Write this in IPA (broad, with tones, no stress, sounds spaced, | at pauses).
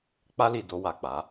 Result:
k͡p a˧ l i˨ d o˧ w a˨ k͡p a˨˦